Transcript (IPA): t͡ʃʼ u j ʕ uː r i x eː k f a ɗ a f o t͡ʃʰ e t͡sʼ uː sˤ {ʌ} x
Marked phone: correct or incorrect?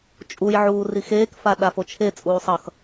correct